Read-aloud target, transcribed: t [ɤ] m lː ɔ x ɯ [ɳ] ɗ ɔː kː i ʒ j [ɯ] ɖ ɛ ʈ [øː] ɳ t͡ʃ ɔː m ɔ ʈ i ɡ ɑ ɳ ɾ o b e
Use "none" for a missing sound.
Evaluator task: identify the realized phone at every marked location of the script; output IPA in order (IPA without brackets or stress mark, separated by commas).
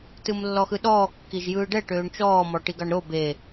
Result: ɯ, none, ɯː, øː